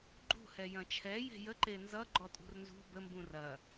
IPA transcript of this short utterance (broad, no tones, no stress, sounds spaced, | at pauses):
ɡ͡ǃ ṳ h ɛ j ɐ̃ t͡ʃʰ ɛ j e̤ j ə ǃ e n z ʌ ɡ͡ǃ ɔ tʼ ṳ r n z ṳ b ə m b ũ r ɐ